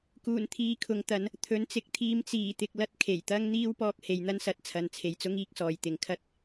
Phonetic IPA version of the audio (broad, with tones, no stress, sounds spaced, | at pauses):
k uː˨˩ n t̪ʰ iː˨ kʰ ʊ˨ ŋ t̪ ɐ˨˧ n | t̪ʰ ɵ˨˥ n t͡s ɪ˨ k̚ t̪ʰ iː˧ m t͡s iː˨˩ t̪ ɪ˨ k̚ l ɐ˧ t̚ kʰ e˨˩ j t̪ ɐ˥ ŋ n̪ iː˥ w p ɔː˧ k̚ h e˨ j n̪ ɐ˥ n s ɐ˨ t̚ t͡sʰ ɐ˨ n t͡sʰ e˨ j t͡s ʊ˥ ŋ iː˥ k̚ s ɔː˨ j t̪ ɪ˨˧ ŋ kʰ ɐ˧ t̚